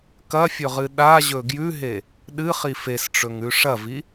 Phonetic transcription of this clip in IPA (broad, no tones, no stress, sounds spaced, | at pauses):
k ɐ fʲ ɵ ʁ ɨ ɗ a ʑ ɵ ɡ j ʉ ɦ e | ɗ ɨ χ i f e s ʈ͡ʂ ɵ ŋ ʉ ʂ ɐ v i